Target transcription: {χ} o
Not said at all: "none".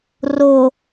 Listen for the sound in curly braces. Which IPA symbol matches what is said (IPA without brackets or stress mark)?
r